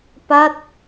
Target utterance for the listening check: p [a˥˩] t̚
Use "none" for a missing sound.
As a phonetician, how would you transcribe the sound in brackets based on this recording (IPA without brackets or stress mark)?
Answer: a˥˩